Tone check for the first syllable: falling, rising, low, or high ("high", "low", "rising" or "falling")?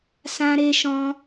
high